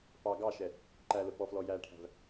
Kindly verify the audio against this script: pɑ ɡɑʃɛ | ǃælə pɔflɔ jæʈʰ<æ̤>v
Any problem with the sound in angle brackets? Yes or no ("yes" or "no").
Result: no